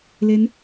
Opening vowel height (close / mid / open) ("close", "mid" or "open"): mid